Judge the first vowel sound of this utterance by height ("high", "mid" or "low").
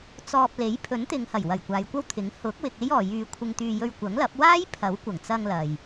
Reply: mid